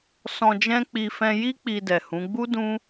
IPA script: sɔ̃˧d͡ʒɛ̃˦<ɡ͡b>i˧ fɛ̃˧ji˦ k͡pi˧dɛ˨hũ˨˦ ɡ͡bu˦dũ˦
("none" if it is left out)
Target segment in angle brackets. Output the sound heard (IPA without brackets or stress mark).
k͡p